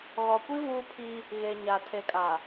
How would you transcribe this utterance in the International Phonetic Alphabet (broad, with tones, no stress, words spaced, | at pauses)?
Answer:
ɣɔ˨kʷi˦ vuː˦pʰi˦ | ɣe˨ɲa˨ tʰe˨kʼa˨